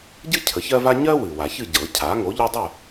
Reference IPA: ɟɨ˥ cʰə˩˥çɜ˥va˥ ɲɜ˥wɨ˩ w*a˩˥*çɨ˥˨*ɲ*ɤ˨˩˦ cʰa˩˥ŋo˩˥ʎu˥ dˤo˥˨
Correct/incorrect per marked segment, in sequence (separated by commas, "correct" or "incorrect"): incorrect, incorrect